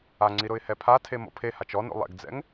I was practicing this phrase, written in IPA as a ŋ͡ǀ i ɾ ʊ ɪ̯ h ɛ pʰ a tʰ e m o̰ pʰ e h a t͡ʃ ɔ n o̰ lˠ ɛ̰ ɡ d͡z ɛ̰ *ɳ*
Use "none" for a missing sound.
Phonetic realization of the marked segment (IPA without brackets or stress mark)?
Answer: ŋ